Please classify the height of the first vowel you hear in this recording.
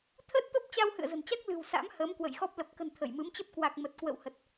mid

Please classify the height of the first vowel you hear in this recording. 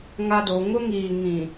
low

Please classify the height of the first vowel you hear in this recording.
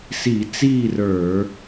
high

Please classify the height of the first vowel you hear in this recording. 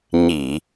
high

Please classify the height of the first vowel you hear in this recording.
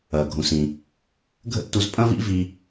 low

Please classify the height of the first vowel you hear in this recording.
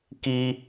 high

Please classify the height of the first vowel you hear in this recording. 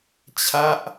low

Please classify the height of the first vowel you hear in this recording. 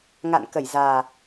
low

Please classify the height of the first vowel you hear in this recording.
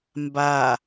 low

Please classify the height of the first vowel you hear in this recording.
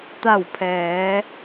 low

